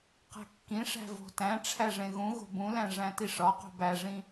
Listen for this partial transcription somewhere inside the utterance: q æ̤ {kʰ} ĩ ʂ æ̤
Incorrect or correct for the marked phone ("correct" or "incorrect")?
incorrect